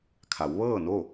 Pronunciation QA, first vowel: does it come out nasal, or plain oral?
oral